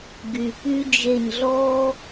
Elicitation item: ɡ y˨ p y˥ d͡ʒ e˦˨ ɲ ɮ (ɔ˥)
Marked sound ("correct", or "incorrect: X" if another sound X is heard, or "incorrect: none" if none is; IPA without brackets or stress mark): correct